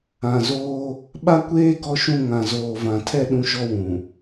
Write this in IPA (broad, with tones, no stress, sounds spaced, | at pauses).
ã˨ z oː˦ | ɓ a˦ kʷ eː˦ ɡ ɔ˦ ʃ ũ˦˨ ŋ ã˨ z oː˨ v ã˨ tʰ ɛ˦ ɗ ũ˦ ʃ ɔ˦ w ũ˨